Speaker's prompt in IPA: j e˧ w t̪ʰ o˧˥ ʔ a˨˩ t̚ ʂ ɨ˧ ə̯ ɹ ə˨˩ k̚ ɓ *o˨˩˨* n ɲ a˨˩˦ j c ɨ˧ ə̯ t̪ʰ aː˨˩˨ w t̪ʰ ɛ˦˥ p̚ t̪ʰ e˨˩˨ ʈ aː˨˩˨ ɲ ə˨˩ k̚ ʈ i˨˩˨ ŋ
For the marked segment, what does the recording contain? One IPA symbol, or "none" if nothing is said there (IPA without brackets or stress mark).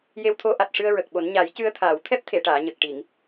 o˨˩˦